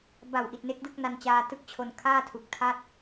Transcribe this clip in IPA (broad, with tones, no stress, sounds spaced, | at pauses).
b a˨˩ w ʔ i˨˩ t̚ n e˦˥ k̚ d ɯ˥˩ k̚ n a˧ n t͡ɕ aː˧ t ɯ˦˥ k̚ t͡ɕʰ o˧ n kʰ aː˥˩ tʰ u˨˩ k̚ tʰ a˥˩ t̚